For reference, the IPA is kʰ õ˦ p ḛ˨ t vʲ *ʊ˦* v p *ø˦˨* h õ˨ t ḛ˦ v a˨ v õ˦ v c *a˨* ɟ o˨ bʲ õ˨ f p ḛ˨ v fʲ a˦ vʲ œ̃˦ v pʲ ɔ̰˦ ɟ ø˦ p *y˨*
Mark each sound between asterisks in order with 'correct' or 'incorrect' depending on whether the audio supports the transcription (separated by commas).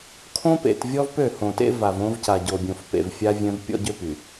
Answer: incorrect, correct, correct, correct